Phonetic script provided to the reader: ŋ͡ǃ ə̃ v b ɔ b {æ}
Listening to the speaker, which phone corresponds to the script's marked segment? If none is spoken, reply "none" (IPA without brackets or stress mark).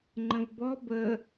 ə